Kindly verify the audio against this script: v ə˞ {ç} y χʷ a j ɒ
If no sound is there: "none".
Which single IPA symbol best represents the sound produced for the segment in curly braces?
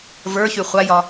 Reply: ç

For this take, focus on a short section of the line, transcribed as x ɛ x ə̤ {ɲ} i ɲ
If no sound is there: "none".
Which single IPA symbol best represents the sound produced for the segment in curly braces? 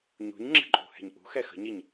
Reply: ɲ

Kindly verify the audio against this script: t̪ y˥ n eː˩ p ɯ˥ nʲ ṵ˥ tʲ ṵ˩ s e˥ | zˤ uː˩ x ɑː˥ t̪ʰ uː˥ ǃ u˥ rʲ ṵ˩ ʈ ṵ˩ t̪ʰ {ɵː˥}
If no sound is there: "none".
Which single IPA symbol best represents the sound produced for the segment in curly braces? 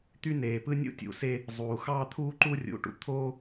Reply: oː˥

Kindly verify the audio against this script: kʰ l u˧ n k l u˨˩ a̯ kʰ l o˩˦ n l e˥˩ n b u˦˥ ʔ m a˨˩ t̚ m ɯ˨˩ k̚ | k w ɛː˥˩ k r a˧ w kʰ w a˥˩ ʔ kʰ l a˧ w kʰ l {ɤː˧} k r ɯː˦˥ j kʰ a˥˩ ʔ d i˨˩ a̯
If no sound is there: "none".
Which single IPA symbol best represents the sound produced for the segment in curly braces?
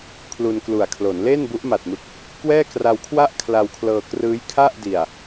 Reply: ɤː˧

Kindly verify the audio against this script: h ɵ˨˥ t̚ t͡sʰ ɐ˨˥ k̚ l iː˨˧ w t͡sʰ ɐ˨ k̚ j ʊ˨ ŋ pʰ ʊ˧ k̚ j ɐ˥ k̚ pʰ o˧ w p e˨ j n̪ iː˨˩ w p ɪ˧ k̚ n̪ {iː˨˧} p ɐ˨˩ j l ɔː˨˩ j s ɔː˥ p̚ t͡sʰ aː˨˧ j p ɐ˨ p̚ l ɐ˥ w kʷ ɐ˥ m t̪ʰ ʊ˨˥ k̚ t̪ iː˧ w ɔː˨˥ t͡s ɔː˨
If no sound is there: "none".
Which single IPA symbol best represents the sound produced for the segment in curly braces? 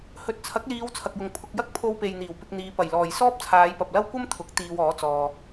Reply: iː˨˧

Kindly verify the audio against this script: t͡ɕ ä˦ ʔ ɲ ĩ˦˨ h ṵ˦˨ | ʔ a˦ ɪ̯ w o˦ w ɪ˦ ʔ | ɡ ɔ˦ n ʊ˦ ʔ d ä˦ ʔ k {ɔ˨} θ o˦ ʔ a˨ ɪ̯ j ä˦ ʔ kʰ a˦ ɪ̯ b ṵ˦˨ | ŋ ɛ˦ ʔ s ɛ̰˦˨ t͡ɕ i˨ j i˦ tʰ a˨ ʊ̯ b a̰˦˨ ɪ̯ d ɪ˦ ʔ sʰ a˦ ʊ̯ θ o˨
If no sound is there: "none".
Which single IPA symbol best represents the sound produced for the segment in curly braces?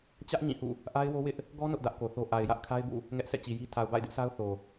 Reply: o˨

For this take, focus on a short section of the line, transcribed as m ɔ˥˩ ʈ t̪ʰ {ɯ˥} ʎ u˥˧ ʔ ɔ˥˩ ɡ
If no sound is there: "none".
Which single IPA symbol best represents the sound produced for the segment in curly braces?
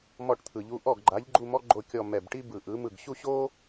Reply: ɯ˨˩˦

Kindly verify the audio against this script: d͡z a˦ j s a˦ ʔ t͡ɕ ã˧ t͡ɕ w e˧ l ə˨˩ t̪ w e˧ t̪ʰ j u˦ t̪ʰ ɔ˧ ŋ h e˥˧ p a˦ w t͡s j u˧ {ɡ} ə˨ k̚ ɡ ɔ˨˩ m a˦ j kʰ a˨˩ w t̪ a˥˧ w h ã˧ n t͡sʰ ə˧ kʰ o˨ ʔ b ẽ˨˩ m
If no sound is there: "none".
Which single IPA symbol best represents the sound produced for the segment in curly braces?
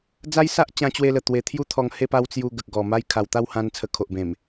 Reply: ɡ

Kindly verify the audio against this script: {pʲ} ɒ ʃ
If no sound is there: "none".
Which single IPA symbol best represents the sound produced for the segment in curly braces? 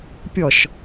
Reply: pʲ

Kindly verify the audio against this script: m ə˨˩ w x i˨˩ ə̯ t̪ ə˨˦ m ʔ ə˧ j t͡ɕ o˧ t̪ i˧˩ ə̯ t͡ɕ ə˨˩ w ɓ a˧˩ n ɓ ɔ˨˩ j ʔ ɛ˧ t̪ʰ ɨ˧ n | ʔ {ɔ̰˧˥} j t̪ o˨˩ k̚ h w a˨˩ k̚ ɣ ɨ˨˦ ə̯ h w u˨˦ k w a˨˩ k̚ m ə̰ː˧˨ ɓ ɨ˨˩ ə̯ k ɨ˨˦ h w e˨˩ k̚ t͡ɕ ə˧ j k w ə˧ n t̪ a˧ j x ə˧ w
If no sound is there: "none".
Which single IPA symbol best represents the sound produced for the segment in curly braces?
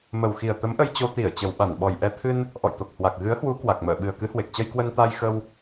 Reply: ɔ̰˧˨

